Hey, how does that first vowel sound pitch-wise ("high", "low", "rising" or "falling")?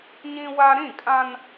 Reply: high